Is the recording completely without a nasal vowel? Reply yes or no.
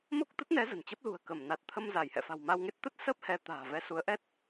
yes